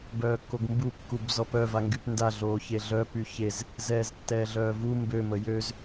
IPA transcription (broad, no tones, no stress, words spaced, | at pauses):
bœːkːoɡmbu kːubzɔpœ vaŋɡypnda ɮoːçeɮœ pyçez | zɛːztːɛːɮœːvu mbø məjøz